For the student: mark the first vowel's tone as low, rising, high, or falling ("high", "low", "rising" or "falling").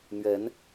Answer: rising